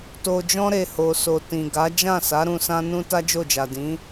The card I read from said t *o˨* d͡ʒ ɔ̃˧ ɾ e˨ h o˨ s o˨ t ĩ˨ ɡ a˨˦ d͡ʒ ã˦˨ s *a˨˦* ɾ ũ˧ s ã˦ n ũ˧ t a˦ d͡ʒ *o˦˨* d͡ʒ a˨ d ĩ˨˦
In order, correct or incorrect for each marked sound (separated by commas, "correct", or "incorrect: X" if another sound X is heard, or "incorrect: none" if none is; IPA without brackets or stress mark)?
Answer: correct, correct, correct